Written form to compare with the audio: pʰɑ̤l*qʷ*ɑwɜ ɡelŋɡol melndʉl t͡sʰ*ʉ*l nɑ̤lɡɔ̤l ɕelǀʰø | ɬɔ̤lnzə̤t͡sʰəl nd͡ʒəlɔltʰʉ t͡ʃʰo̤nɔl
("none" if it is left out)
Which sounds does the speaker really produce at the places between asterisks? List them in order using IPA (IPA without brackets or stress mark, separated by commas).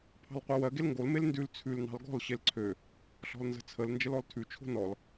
qʷ, ʉ